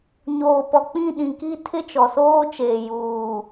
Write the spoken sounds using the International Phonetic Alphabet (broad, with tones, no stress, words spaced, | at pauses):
ɲoː˨pɔ˨k͡pĩ˦˨ ɗĩ˨ki˦ tʰɪ˦t͡ʃɔ˨soː˦t͡ʃeː˨ juː˨